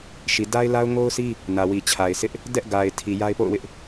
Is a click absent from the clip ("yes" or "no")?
yes